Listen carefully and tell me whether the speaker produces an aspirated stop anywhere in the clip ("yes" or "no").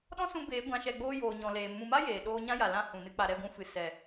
no